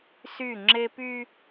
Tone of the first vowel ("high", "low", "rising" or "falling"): falling